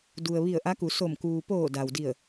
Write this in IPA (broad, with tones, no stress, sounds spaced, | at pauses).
d u˩ ə̯ ʋ i˧˩ ə̯ ʔ a˧˥ k u˩˧ s o˧˩ m k uː˩ p oː˧˩ d a˩ w d i˧˩ ə̯